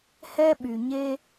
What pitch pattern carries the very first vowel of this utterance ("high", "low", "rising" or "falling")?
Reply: high